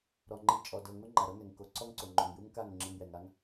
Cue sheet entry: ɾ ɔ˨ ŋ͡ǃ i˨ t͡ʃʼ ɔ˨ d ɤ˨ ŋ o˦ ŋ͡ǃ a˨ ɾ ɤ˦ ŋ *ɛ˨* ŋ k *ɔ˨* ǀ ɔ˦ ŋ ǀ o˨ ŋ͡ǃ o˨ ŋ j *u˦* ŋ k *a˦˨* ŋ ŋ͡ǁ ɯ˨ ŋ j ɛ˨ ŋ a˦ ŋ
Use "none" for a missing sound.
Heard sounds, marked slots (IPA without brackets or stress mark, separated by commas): ɛ˨, o˨, u˦, a˦˨